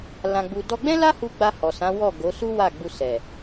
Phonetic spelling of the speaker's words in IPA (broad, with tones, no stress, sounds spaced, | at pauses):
l ã˧ ɡ͡b u˧ d ɔ˧ ɡ͡b ɛ̃˦ l a˦ h u˧ ɡ͡b a˧ h ɔ˨ s ã˨˦ w ɔ˦˨ ɡ o˨˦ s u˦ w a˦˨ ɡ͡b u˧ s ɛ˨